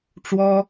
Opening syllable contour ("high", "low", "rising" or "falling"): high